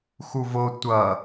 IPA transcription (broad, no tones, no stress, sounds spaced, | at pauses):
x u v o tʷ ʌ